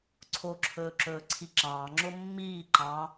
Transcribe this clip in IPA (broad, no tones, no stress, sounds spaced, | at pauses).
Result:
ǀʰ o ǁʰ ɵː ǁ ɵː ǀʰ i ǁ ɑ̃ː ŋ͡ǁ o mː iː ǃ ɑ̃ː